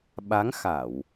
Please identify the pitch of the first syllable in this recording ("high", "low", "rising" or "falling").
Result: rising